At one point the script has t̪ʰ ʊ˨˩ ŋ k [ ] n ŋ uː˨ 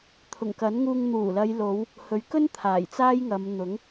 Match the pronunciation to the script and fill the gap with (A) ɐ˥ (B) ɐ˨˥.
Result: B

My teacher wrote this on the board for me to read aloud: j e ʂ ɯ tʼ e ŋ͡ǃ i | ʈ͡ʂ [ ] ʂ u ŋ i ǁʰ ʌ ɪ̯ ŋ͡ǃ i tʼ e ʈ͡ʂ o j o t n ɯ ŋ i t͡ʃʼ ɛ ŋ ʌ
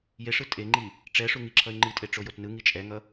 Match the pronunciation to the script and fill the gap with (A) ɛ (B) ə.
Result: A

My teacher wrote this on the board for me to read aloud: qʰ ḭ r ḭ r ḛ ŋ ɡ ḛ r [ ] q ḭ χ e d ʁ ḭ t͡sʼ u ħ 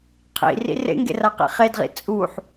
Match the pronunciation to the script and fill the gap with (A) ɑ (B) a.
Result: B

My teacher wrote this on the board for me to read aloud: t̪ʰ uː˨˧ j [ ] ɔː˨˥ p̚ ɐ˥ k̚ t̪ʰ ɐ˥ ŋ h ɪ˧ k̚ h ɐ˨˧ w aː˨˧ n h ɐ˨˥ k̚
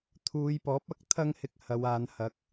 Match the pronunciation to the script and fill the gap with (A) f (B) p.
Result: B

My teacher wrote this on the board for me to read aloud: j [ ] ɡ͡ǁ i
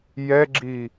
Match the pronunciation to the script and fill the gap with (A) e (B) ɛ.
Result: B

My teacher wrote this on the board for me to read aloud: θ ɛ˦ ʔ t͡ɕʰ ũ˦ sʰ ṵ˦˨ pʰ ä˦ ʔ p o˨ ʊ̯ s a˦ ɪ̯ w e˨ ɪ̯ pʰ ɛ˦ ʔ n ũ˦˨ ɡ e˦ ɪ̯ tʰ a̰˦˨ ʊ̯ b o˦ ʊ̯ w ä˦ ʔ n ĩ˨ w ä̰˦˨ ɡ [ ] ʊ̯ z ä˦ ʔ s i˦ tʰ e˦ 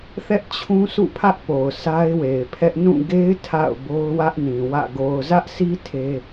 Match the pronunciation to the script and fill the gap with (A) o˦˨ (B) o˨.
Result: B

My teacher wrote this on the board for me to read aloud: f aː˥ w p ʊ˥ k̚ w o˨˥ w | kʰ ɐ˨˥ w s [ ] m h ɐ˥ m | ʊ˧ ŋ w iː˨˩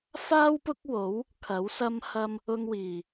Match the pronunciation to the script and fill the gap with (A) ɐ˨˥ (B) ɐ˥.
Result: B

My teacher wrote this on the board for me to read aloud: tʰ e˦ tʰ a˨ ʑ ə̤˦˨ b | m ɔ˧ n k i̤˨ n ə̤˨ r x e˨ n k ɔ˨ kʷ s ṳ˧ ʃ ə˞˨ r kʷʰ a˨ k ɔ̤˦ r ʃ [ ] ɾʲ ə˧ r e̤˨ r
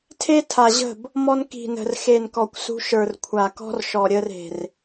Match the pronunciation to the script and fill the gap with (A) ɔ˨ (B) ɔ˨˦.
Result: A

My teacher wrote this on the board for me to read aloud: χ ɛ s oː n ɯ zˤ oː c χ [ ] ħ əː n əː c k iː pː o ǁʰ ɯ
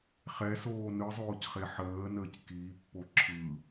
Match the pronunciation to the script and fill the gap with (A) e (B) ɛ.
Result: A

